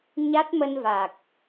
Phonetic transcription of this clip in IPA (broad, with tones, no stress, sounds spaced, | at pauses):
ɲ a˦˥ t̚ m ə˧ n v a˨˩ k̚